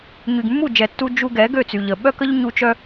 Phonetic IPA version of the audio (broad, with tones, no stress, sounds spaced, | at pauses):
ɲ y˨ ɡ mː u˦˨ d͡ʒ ɛ˨ tː u˧ d͡ʒ u˧ ɡ ɛ˨˦ ɡ ø˦˨ t͡s y˨ ʎ ə˨ ɓ œ˦ k ə˦ ʎ ɲ u˧ t͡ʃ œ˧